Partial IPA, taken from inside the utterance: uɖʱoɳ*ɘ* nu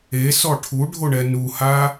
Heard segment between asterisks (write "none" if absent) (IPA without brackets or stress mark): ɛ